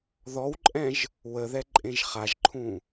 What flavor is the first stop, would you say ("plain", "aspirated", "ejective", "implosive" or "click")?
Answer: click